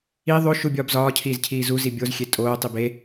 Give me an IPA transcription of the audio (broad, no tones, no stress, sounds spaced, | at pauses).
i ðˤ o ʃ u bʲ ɒː b z ɒː cʰ iː z cʰ iː z u z i bʲ o z xʲ e tʼ oː tˤ i b e